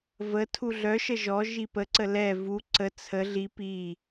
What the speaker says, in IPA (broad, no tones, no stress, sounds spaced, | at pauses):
v ə tʰ u ɮ œ ʃ ə ʒ ɔ ʒ i p ə ǀ ə l ɛ v u ǀ ə t͡sʰ ə ɮ i p i